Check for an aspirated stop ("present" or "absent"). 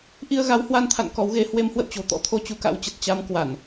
present